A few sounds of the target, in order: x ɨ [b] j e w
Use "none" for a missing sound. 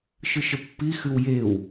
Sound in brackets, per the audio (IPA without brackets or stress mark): w